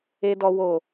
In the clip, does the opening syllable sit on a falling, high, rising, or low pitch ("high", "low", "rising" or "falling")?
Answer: low